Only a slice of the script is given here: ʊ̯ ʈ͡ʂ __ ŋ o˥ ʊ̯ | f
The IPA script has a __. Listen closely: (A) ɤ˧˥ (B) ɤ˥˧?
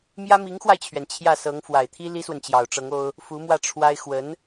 A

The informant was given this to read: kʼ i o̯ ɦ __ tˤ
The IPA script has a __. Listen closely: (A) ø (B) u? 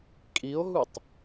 B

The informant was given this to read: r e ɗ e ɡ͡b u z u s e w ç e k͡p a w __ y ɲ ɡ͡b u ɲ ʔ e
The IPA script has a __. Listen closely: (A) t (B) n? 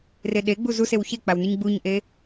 B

